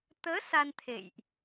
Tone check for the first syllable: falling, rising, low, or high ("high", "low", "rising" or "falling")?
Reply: rising